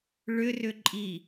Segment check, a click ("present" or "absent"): present